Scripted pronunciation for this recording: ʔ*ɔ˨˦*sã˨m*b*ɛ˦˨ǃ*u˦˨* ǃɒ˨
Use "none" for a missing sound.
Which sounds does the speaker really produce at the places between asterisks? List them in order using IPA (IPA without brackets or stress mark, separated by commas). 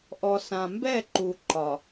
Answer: ɔ˨, b, u˨